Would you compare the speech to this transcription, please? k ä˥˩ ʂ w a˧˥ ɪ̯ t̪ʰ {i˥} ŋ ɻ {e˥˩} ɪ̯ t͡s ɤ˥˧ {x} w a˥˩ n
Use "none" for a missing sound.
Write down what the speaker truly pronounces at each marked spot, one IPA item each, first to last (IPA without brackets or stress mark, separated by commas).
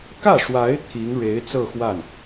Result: i˧˥, e˧˥, x